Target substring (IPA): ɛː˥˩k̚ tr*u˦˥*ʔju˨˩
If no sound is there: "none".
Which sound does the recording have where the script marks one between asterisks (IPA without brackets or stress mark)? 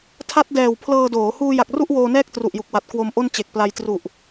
u˨˩